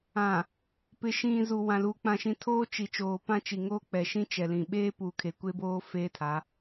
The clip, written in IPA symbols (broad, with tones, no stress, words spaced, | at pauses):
ã˨ | pɪ˨ʃĩ˨ zu˨wã˨lu˨ k͡pã˨ʃĩ˨tʰoː˦ t͡ʃi˨ t͡ʃoː˨pã˦t͡ʃi˨ŋoː˦ k͡pɛ˨ʃĩ˦ t͡ʃɛ˨lĩ˨ ɓeː˦ puː˨kʰe˨kʷe˦boː˦ feː˦tʰa˨˦